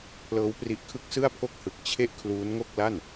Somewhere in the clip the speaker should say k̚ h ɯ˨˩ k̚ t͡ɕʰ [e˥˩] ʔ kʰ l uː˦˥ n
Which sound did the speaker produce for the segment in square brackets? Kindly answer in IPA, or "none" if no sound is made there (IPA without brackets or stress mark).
e˥˩